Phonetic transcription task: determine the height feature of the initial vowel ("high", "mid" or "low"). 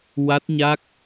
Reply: low